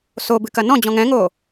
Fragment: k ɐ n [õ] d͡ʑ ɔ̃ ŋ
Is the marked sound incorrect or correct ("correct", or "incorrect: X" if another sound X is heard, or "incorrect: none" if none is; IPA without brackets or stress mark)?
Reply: incorrect: ɔ̃